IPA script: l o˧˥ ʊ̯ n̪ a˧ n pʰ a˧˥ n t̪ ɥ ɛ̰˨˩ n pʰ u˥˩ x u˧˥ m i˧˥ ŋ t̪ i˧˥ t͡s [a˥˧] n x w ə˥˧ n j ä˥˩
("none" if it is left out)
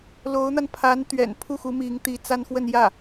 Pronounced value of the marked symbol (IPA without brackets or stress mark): a˥